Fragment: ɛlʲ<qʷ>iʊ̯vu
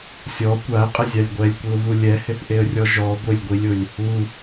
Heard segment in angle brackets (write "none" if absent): kʷ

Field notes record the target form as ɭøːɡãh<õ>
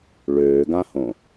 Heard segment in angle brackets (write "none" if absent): õ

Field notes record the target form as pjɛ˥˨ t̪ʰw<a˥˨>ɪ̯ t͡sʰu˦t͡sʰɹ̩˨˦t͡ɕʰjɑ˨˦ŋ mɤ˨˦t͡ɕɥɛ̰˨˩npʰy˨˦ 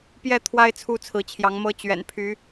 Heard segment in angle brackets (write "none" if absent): a˦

